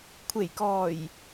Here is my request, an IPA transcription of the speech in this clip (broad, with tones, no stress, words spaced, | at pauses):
kʷʰe˨˩jkɔː˨˩j